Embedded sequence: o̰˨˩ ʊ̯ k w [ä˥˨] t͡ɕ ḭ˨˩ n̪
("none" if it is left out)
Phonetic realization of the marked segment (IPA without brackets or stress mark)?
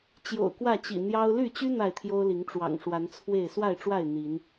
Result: ä˥˨